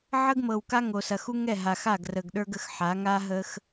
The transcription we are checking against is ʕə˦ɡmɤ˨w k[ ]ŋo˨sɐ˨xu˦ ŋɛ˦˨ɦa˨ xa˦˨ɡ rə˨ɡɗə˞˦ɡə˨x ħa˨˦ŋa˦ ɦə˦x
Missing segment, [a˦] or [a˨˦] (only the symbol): a˦